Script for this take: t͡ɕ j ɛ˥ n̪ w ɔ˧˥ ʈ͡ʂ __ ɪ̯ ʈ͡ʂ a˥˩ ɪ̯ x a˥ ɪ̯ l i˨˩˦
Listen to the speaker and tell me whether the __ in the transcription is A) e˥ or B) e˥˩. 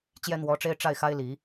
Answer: A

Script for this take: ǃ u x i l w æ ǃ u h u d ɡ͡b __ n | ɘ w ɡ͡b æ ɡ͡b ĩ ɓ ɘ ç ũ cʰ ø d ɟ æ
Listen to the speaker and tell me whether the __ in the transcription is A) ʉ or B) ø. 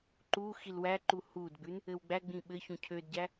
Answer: A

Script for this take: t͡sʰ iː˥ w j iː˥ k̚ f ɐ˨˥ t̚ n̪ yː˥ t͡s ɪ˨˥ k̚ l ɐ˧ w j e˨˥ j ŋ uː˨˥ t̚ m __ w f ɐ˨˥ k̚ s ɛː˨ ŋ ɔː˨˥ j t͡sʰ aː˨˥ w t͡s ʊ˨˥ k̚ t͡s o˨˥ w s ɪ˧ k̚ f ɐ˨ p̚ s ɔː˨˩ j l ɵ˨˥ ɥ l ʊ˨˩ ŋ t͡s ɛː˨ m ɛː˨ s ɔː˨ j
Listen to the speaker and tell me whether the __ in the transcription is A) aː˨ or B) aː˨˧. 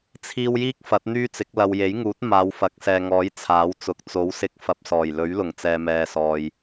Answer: B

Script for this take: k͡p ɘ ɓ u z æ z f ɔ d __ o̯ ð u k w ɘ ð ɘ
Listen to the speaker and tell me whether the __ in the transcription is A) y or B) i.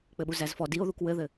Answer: B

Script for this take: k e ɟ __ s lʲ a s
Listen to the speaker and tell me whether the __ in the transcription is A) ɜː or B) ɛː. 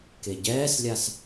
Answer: B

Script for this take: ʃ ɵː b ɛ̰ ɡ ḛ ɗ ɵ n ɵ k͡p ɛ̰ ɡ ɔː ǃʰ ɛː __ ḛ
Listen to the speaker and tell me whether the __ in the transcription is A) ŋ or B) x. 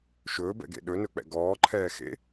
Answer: B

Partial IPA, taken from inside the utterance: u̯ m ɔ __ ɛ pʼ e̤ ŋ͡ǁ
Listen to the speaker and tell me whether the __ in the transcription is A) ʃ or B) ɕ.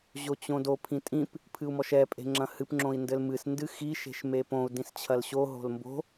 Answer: A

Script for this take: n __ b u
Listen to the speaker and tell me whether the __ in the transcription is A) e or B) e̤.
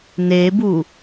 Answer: A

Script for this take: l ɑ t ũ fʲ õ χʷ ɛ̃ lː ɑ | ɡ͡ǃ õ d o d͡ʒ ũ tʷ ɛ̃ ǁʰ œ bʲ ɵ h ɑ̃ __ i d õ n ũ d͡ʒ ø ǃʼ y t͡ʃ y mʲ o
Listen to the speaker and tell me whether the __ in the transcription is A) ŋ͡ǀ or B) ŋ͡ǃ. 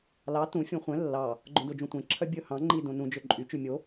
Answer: B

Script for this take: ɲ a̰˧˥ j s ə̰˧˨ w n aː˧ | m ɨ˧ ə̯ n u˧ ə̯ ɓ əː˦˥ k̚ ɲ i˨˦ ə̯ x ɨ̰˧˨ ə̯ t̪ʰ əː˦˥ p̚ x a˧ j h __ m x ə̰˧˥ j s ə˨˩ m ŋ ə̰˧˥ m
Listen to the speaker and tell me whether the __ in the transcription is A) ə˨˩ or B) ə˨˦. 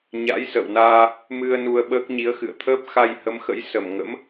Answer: B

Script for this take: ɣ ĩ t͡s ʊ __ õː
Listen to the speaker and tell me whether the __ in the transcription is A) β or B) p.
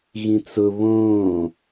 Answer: A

